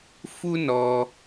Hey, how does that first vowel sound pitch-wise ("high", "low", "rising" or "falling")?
high